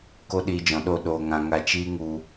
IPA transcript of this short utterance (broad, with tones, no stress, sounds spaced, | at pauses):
k o˦ ɗ iː˧ d͡ʒ ɔ̃˨ ɗ o˦˨ ɗ oː˧ ŋ ã˧ ŋ a˧ t͡ʃ iː˦ ŋ u˧